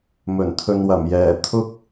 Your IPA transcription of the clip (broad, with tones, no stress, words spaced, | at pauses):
mɵ˨˩nt̪ʰɵ˨nwɐ˨˩m jɛː˨˩t̪ʰʊ˥k̚